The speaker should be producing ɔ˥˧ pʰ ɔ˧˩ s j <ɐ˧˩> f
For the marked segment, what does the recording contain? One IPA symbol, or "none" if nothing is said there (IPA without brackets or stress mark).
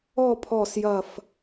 ɐ˧˩